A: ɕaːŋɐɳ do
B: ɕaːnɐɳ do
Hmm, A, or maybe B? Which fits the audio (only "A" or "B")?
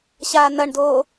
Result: B